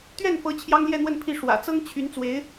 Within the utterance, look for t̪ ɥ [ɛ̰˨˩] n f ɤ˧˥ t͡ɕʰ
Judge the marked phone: incorrect: ɛ˥˩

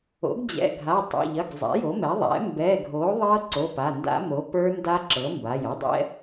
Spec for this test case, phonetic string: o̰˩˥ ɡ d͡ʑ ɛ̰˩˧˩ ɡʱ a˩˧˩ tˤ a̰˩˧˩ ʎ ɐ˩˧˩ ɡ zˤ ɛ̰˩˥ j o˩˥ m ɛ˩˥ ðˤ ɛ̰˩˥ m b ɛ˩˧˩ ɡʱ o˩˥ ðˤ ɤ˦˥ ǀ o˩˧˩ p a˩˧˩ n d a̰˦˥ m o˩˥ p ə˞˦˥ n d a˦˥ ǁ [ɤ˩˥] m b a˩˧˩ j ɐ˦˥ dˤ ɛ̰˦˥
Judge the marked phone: correct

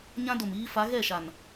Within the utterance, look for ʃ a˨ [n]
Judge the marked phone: correct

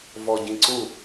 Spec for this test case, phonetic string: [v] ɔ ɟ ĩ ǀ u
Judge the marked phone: correct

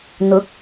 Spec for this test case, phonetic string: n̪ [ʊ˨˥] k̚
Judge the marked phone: correct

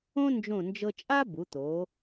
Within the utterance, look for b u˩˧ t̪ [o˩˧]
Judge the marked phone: correct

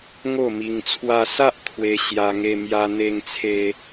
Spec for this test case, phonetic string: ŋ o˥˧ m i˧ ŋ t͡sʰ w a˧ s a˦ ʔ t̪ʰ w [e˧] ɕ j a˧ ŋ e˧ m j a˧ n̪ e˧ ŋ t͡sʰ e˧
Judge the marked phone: correct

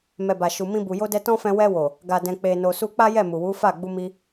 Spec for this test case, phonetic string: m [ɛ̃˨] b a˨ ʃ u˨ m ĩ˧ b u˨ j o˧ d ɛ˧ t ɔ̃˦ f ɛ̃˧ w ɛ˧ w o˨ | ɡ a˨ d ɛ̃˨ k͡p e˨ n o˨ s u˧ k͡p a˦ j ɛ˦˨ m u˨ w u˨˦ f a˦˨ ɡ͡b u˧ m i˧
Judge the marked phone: incorrect: ɛ˨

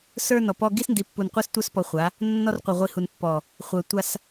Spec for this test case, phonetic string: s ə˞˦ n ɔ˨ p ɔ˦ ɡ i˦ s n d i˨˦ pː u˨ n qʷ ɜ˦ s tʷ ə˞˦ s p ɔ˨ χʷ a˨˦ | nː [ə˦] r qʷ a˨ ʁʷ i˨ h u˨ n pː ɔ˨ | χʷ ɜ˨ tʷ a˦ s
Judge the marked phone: incorrect: ɔ˦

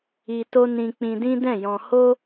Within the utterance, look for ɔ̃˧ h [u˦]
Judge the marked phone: incorrect: o˦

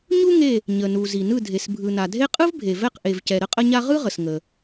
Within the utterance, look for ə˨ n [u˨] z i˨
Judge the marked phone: correct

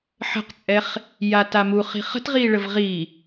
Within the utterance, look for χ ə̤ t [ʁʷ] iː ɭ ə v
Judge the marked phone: incorrect: ʁ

